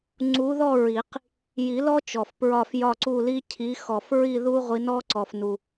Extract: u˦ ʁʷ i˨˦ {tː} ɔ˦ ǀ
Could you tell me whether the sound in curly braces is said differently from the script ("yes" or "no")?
yes